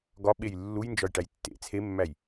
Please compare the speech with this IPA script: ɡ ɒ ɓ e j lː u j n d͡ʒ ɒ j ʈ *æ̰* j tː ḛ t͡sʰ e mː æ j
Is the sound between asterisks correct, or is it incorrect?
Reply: incorrect